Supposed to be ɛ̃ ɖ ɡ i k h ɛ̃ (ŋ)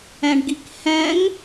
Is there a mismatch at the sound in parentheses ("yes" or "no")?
no